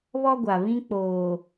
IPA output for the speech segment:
β ɔ˦ ɡʷ a˨ β ĩ˦ k͡p oː˨

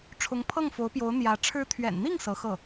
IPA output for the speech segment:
ʈ͡ʂʰ ʊ˧˥ ŋ pʰ ɤ˥˩ ŋ f o˧˥ ʊ̯ p j o˧˥ ʊ̯ n̪ j ä˧˥ ʈ͡ʂʰ ɻ̩˧˥ t̪ʰ ɥ ɛ̰˨˩ n n̪ i˥˩ ŋ s ɤ˧˥ x ɤ˥˩

